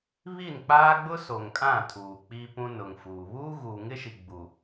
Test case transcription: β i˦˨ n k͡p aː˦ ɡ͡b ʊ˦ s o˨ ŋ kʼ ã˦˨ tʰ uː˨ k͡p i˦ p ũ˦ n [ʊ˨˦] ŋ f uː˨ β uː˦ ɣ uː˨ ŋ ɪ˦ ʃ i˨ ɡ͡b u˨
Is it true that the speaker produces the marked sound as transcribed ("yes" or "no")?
no